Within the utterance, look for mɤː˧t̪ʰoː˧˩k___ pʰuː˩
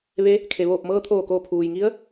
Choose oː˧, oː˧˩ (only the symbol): oː˧˩